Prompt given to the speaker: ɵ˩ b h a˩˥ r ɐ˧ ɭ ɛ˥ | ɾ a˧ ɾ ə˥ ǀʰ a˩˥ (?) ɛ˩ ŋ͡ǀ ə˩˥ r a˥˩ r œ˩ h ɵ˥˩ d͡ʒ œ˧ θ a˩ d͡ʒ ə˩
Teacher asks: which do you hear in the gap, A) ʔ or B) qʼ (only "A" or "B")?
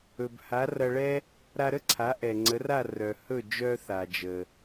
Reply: A